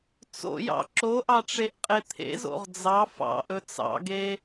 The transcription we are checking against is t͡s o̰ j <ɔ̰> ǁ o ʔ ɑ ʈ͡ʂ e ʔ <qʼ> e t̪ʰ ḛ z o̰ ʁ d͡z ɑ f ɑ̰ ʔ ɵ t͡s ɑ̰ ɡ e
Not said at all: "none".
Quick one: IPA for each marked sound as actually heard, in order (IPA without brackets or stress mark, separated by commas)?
ɑ̰, qʼ